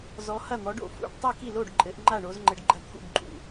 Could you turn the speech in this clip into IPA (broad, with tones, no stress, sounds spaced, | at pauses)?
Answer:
z ɔ˨˦ h ɐ˥˨ n̪ ɔ˨˦ ɖ o̰˥˨ f ṵ˥˨ ɖ tˤ i˥˨ k i˥˨ l o˥˨ ɖ ǃʼ ɘ˨˦ ʔ ŋ͡ǃ a˥˨ ɳ o˨˦ z ŋ͡ǃ ɘ˨˦ ɖ ɡ͡ǃ ɐ˥˨ t̪ʰ ṵ˥˨ b ǃʼ ṵ˥˨